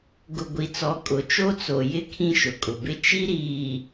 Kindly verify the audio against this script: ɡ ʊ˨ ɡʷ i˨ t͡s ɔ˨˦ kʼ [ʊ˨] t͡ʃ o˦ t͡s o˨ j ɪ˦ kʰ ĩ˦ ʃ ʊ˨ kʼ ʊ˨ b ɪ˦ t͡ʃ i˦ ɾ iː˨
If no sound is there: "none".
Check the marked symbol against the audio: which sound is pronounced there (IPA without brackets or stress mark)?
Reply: ʊ˨